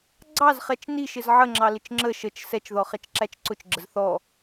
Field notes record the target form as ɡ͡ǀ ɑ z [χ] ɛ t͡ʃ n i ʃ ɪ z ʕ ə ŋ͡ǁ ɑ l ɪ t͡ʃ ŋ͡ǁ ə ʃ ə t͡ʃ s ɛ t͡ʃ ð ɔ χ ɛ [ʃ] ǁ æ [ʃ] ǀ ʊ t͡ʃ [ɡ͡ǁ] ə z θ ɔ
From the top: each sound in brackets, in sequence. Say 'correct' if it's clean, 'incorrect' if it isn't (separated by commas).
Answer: correct, incorrect, incorrect, correct